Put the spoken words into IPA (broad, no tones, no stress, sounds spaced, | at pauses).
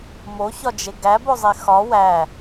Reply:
m o ç ɒ d͡ʒ e ɡ æ b o zˤ e x ɒ w æ